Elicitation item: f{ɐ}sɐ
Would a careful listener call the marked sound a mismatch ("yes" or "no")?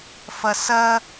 no